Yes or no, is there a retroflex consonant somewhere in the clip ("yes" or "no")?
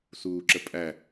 no